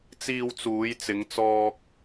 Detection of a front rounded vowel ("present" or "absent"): absent